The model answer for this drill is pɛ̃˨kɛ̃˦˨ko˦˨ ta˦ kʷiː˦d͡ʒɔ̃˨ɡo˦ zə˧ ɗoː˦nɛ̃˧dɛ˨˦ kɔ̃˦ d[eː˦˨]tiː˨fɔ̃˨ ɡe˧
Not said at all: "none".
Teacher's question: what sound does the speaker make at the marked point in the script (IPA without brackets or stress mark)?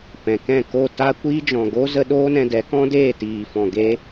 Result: eː˦˨